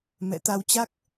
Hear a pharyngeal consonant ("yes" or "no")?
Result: no